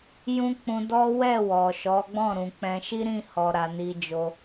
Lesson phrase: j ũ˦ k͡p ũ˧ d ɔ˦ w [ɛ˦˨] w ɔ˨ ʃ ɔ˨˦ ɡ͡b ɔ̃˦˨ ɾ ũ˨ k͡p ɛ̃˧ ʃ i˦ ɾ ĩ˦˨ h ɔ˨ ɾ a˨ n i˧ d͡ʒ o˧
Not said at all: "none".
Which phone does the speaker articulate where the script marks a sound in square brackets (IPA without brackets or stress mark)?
ɛ˦˨